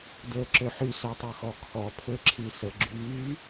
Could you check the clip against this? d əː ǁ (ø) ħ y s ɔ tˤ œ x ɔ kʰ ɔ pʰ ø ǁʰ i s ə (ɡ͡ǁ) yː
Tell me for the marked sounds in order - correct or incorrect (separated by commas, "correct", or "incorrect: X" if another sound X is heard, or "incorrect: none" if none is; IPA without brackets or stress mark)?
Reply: correct, correct